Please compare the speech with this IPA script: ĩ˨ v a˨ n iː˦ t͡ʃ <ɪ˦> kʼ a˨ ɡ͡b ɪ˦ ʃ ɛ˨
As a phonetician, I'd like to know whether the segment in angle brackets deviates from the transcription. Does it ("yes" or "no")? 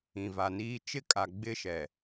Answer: no